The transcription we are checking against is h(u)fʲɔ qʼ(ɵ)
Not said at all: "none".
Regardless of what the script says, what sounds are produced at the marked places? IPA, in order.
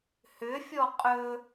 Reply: ʏ, ɵ

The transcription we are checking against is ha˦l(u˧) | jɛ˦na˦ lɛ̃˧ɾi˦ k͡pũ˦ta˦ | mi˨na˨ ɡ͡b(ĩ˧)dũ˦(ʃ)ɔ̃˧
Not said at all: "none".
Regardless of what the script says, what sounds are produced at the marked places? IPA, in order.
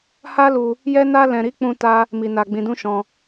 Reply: u˧, ĩ˧, ʃ

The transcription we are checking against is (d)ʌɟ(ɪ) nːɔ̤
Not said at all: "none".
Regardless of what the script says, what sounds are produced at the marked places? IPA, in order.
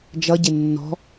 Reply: d͡ʒ, ɪ

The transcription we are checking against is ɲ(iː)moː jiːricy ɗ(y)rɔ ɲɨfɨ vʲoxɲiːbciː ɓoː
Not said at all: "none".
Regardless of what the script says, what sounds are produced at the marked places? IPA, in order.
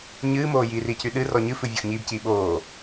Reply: ɨː, ɨ

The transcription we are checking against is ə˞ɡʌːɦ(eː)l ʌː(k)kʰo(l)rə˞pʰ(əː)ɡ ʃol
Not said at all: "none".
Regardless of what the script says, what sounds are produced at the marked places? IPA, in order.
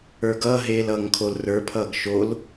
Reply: eː, ŋ, l, ʌː

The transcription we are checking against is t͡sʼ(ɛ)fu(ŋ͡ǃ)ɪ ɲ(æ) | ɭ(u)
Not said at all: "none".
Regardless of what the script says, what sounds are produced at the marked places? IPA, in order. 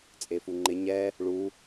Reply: e, ŋ͡ǃ, ɛ, u

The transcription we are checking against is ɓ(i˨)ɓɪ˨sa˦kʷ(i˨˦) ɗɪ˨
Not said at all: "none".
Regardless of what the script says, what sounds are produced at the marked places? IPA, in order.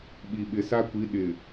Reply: i˨, i˨˦

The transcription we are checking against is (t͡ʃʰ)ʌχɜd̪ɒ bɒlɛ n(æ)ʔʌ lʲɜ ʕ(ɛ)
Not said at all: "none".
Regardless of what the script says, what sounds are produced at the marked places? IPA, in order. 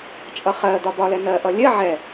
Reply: t͡ʃʼ, ɜ, ɛ

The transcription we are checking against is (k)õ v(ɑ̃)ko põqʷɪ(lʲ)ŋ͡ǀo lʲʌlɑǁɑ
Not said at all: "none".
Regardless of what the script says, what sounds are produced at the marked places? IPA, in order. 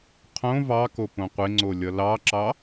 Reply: qʰ, ɑ, none

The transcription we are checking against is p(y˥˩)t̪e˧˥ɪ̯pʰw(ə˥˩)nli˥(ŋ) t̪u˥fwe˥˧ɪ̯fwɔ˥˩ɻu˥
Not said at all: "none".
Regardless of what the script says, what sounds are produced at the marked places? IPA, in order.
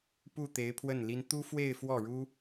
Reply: u˥˩, ə˥˩, n

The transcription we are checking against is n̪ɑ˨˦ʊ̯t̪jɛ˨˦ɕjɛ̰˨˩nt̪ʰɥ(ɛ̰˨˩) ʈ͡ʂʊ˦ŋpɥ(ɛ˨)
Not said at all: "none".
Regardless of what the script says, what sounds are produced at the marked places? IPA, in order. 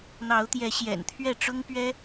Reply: ɛ˥˨, ɛ˦

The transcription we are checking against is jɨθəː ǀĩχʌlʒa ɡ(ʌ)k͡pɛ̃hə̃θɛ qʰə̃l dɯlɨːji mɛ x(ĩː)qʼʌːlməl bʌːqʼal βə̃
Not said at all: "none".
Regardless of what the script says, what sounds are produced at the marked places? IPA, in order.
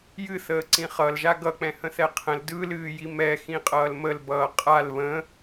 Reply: ʌ, ĩ

